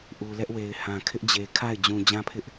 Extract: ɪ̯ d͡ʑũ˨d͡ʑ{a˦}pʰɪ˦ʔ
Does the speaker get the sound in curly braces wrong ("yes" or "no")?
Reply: yes